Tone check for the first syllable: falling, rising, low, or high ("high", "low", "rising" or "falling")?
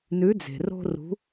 rising